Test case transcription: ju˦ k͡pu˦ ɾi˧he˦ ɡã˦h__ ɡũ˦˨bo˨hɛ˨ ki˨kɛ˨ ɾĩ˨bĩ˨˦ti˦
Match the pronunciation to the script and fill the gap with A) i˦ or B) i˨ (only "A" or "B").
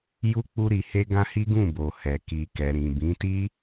A